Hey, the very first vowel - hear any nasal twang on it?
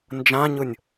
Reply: yes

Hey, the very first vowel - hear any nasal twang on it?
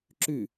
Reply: no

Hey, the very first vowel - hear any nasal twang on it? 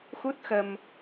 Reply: no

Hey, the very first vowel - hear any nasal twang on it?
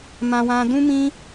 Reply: yes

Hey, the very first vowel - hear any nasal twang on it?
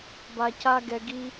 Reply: no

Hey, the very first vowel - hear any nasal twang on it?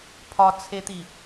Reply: no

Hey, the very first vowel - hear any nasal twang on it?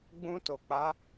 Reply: yes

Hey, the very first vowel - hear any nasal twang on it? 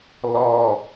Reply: no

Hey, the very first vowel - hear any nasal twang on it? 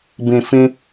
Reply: yes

